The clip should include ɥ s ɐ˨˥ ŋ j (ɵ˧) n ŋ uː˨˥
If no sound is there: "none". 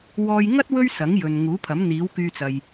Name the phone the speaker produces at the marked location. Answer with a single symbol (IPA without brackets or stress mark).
ɵ˨